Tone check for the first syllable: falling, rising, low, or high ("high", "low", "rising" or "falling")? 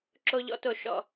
high